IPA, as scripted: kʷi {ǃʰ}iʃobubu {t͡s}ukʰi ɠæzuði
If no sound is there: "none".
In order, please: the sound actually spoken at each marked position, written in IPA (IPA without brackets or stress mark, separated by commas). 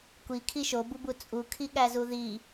kʰ, t͡sʼ